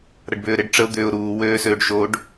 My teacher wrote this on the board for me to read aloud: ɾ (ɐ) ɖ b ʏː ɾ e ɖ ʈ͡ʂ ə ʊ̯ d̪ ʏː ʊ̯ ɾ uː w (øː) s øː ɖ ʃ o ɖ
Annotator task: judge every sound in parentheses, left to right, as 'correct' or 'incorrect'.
correct, correct

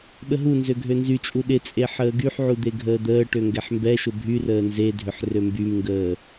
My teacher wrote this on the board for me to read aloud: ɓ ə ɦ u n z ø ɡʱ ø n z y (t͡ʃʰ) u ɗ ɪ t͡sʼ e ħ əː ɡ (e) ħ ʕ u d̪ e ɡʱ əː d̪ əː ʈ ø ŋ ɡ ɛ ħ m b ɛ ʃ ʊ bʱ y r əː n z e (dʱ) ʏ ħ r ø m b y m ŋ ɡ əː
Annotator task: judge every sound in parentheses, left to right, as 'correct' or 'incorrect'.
incorrect: t͡ʃʼ, incorrect: y, correct

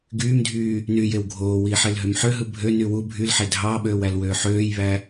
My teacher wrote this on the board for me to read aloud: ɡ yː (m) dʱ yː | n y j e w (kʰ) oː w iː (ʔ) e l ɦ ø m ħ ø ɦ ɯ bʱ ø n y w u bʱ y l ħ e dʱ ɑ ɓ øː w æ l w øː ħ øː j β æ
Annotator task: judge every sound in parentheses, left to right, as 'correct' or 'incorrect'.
correct, incorrect: ɡʱ, incorrect: ħ

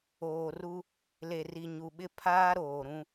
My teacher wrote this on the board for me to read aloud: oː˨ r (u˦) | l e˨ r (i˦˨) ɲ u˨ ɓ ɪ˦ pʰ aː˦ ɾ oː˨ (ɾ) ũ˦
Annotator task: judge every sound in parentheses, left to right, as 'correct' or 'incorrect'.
correct, incorrect: i˨, correct

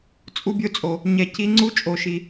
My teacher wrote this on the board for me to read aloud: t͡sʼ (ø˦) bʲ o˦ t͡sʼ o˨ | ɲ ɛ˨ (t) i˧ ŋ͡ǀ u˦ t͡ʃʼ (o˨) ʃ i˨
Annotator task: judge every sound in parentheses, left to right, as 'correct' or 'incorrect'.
incorrect: u˦, incorrect: c, correct

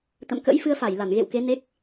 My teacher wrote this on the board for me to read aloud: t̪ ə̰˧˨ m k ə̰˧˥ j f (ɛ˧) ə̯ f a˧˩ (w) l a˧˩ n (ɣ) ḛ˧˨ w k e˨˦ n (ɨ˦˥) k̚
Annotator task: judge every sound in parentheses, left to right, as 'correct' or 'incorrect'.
incorrect: ɨ˧, incorrect: j, correct, incorrect: e˦˥

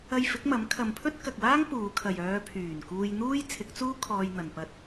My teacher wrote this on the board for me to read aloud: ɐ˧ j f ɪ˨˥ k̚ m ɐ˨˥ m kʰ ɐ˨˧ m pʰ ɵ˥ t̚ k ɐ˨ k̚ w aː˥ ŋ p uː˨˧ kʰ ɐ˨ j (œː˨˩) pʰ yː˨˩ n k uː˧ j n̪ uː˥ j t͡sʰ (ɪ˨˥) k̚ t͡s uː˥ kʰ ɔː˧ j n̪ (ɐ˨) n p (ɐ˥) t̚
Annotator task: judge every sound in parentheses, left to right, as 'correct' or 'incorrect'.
incorrect: œː˨˧, correct, correct, correct

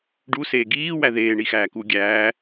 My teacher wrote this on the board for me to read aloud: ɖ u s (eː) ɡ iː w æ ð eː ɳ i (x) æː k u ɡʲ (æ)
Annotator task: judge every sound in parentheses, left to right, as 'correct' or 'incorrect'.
correct, correct, incorrect: æː

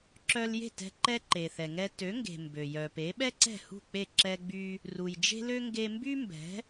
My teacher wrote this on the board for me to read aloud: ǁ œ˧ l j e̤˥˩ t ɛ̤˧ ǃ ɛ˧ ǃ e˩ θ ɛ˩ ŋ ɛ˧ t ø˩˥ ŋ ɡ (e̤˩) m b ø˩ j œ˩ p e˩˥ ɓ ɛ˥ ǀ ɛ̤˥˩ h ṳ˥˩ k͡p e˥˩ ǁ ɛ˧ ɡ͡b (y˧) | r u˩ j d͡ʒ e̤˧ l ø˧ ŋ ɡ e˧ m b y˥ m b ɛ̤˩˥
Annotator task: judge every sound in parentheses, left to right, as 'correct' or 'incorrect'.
correct, correct

